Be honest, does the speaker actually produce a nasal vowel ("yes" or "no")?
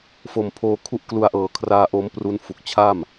no